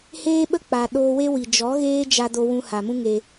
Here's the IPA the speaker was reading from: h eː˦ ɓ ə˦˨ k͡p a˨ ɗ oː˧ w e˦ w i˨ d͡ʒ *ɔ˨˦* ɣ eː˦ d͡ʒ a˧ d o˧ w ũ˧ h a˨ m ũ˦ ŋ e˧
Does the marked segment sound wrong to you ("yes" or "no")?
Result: no